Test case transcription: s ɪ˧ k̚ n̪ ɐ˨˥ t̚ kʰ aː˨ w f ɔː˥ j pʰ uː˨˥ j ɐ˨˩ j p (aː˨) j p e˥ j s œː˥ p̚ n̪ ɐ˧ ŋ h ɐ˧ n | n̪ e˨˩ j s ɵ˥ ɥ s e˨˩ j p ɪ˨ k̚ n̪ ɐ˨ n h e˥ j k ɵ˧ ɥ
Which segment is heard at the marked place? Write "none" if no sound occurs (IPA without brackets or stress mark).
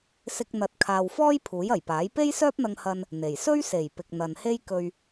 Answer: aː˨˥